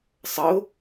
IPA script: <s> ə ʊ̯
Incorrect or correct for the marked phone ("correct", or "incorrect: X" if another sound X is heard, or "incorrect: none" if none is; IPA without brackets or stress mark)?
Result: incorrect: sˤ